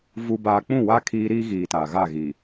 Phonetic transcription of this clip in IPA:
v u˨ b aː˨ k͡p ũ˦˨ w aː˦ kʰ iː˦ ɾ iː˦ ɣ iː˨ t a˨ ɣ a˦˨ ɣ i˨

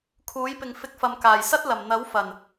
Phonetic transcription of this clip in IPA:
kʰ uː˨˥ j p ɪ˨ ŋ f ɪ˧ k̚ f ɐ˨ m k aː˨˩ j s ɐ˥ t̚ l ɐ˨˩ m n̪ ɐ˨˥ w f ɐ˨˩ n

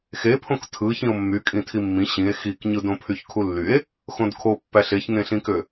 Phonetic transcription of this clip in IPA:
x e pʰ õ k tʰ ɯ ç ĩ o̯ mː y kʼ ĩ tʰ i mː ĩ ɕ ĩ e̯ x i k ɲ ɯ d õ pʰ y ç kʰ u lː y e̯ | x õ d kʰ o pː æ ɬ e ç ŋ ẽ ɬ ĩ k ø

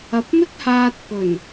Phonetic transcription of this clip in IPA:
ɐ˨ p̚ m ɪ˥ k̚ h aː˧ t̚ p ɵ˨˩ n

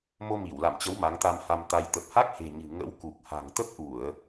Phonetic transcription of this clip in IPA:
m o˧ m i˧˩ w l a̰˧˨ m t͡ɕ ə˨˦ w m a˨˦ ŋ t̪ a˧ m h a˧ m t̪ a˧ j t̪ ə˨˩ p̚ h a˦˥ k̚ h e̤˨˩ ɲ ɨ̤˨˩ ŋ ə̰˧˥ w k u˨˩ k̚ h a̤˨˩ ŋ t̪ ə˦˥ p̚ ʔ u˧˩˨ ə̯

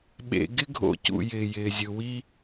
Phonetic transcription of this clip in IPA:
ɓ ḛ˩ ɡ ɪ˥ ɡʱ o̰˨ c ṵ˩ j ɪː˩ j ɪː˩ zʲ ɯ˩ w i˦

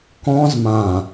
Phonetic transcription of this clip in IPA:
k ɔ̃ z m ã

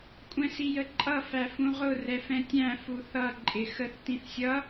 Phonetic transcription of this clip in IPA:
kʷʼ ɛ̃ s i j ə ǃʼ ʌ f æ f ũ ʁ ʊ r ɛ f ɛ̃ tʲ æ̃ f u θ ʌ ǃʼ ɪ x ə θ t ĩ θ sʲ ʌ

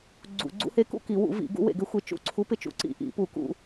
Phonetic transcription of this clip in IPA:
ɡ͡ǀ ṵ˧˩˧ ɡ͡ǀ ṵ˧˥ h e˧˥ k ṵ˥˧ k i˧˩˧ w ṵ˧˩˧ v ḭ˧˩˧ ɡ ṵ˧˥ w ḛ˧˩˧ ɡ ɪ˧˥ xʷ ɪ˧˥ t͡ʃ ṵ˥˧ ǀʰ u˧˥ p ɪ˥˧ t͡ʃ ṵ˧˥ ǀ ḭ˧˩˧ ʔ ḭ˧˩˧ p u˧˩˧ k ṵ˧˩˧

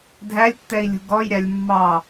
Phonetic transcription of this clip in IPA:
dʱ æ lʲ tː ɛ i̯ lʲ ṳ ɡ ɔ j ɾʲ a lʲ mː ɑ

